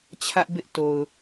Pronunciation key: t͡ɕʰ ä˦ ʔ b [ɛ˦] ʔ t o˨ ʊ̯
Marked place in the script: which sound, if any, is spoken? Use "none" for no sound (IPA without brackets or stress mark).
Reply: ɪ˦